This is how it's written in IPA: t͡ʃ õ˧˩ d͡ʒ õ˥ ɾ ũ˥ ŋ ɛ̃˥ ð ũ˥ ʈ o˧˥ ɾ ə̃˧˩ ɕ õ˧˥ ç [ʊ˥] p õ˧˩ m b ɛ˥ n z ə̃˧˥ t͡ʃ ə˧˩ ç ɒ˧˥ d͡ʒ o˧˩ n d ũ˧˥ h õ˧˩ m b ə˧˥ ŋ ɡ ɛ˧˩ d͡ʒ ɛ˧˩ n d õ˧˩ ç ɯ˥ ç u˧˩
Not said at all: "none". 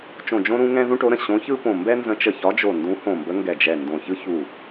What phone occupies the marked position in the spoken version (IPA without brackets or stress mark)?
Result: ɯ˥